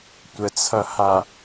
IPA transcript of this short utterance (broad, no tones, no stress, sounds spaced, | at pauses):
tʷ ə t͡sʰ ʌ h a